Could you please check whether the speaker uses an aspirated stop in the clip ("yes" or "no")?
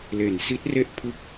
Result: yes